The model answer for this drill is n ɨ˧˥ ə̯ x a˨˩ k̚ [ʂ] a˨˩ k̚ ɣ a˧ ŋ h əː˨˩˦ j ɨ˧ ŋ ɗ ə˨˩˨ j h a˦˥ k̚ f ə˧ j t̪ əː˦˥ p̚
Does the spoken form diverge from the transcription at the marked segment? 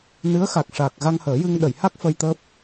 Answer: no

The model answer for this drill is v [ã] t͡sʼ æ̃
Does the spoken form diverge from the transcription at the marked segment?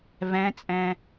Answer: yes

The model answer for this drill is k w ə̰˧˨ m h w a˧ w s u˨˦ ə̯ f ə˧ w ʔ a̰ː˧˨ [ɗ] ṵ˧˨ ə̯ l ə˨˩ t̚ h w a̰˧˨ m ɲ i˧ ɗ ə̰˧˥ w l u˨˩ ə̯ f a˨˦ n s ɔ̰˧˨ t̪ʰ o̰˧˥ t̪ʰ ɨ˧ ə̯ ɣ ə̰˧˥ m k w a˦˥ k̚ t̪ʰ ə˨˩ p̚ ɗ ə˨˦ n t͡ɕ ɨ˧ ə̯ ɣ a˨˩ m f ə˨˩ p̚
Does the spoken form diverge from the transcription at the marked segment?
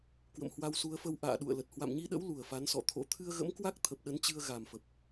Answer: no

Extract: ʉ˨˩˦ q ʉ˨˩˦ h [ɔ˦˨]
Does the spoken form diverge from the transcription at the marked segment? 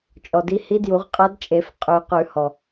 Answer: yes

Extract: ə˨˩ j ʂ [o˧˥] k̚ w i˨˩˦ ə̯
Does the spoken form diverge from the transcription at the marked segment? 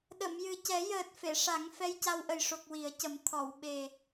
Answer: yes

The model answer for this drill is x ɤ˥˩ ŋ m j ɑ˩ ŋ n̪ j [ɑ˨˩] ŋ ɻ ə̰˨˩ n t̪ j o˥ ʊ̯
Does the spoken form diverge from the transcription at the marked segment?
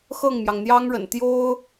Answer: yes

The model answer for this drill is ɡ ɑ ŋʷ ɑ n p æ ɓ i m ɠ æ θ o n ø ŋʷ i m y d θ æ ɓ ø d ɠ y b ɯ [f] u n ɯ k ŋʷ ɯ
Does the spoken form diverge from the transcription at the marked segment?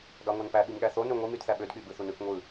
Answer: yes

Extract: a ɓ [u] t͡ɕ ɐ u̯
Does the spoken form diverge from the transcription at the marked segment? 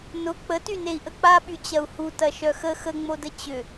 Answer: yes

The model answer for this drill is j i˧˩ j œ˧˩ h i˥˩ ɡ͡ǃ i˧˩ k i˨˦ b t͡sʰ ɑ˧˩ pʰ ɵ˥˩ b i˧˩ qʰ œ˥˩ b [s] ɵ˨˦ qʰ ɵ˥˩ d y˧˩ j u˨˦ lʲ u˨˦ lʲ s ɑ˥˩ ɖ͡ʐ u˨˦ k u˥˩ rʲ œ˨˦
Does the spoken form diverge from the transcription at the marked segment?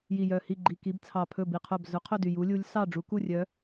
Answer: yes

